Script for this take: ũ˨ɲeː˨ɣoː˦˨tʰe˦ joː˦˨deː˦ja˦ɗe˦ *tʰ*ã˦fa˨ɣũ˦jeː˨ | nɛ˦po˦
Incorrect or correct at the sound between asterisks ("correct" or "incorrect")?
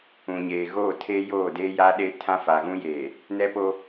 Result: correct